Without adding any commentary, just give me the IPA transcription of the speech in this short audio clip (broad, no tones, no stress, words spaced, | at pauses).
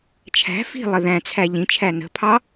t͡ʃʰæ̤ fi̤lˠə ðæ̃t͡sʰæ ʎĩt͡ʃʰæ nə̤pʰɑ